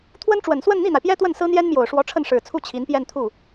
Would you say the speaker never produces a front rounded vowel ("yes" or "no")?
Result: yes